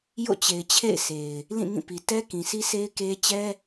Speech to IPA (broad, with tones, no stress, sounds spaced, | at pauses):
j o̰˦˨ t͡ɕ e˨ ɪ̯ t͡ɕʰ ḛ˦˨ ɪ̯ sʰ e˨ ɪ̯ | l ĩ˦˨ ŋ ĩ˦˨ p i˨ t ɛ˦ k ĩ˨ sʰ i˦ sʰ e˦ ɪ̯ k e˦ t͡ɕ ɛ˦